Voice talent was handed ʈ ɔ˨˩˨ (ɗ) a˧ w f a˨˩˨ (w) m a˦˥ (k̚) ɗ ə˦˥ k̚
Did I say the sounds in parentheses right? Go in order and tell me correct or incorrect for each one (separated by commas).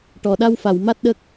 correct, correct, incorrect